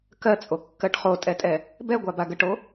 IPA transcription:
k ɜ t͡sʼ o kː ɜ ʈ χ o tʼ ɛ tʼ ɛ | b ɛ ɡʷ a b a ɡ ə ʈ o

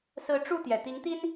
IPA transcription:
s ɹ̩˨˦ ʈ͡ʂ u˥˨ t̪ j ɛ˩ t̪ i˨˦ ŋ t̪ i˦ n

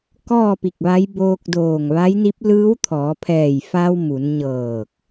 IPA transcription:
k ɔː˥˨ p i˧˩ k̚ ʋ a˧˥ j b oː˧ k̚ d oː˧˩ ŋ ʋ a˧˥ j n i˧˥ p̚ l ɯː˧˥ w t̪ʰ ɔː˩˧ pʰ ɛː˧˩ j f a˧ w m u˩˧ n ɲ ɤː˧˩ k̚

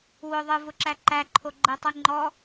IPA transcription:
w ʊ ðˤ ɯ v ʊ ǁ æ ǃ æ ǃʰ o ɡ͡ǃ ɘ tˤ ɯ ŋ͡ǃ ɔ

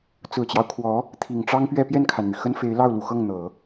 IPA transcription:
t͡s ɹ̩˨˩ t͡ɕ j ɑ˦ ʊ̯ kʰ w ɔ˧˥ | t̪ʰ i˨˩ ŋ ʈ͡ʂ ɑ˥ ŋ p ɥ ɛ˥˧ p j ɛ˥˩ n kʰ a˩ n n̪ y˩ x ə˥ n f e˧˥ ɪ̯ l ɑ˥˩ ʊ̯ l u˨˩ x ɤ˥˩ ŋ n̪ ɤ˨˩˦

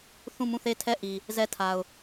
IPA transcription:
θ ũ˦˨ m ũ˦˨ θ e˦˨ tʰ ɛ˦˨ ʔ i˨ | z ɛ˦˨ tʰ a˨ ʊ̯

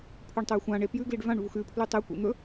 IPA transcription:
pʰ ʉ ɳ tˤ ɵ j xʷ ã ɳ e p j ʉ ɡ l i ɖ v ã ɳ v u x ʉ pʰ l ʉ tˤ e kʷ ḭ n̪ ɵ

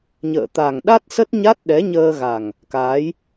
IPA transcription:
ɲ ə̰ː˧˨ t̪ a˨˩ ŋ ɗ a˦˥ t̚ s ə˦˥ t̚ ɲ a˦˥ t̚ ɗ ɛ˨˦ ɲ əː˧ ɣ a˨˩ ŋ | k aː˨˦ j

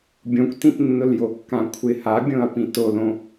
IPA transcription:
bʲ õ kʷ t ĩ t nː ʊ l j o kː ã kʷʰ ɪ h a bʲ õ ɐ̯ p ĩ t o l õ

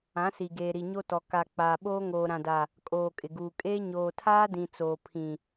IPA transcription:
ã˨˦ s i˨ ɡ eː˨ ɾ i˨ ɲ o˦ t ɔ˨ k a˨ k͡p aː˨ ɓ oː˦ ŋ oː˨ ɾ ã˨ d a˨ | kʼ oː˨ kʼ ɪ˨ ɡ uː˨ kʼ eː˦ ɲ oː˨ tʰ aː˦ d ĩ˨ t͡s oː˨ pʰ ĩ˨

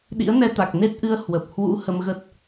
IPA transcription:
ɗ ḭ˧˥ ə̯ n ɛ˧ t̪ a˨˩ k̚ n e˦˥ t̚ ʔ ɨ˧ ə̯ h w ə˨˩ p̚ h w ṵ˧˥ h ə˧ m ɣ ə˦˥ t̚

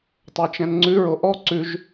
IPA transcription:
tˤ æ t͡ʃ ɛ̃ n ŋ͡ǀ ʉ ɹ o ʔ ɔ ǀ ʉ ʒ

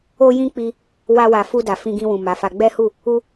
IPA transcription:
o˦ j ĩ˦ k͡p i˧ | w a˧ w a˨ f u˧ d a˨ f ĩ˧ ɡ ĩ˧ w ũ˨ m a˨˦ f a˧ ɡ͡b ɛ˦ h u˦˨ | u˦

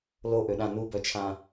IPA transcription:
l o ʔ ø ɗ ã n u b œ t͡ʃʰ ã

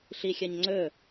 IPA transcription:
ɬ i xʲ ɐ ɲ ŋ͡ǀ ɵ

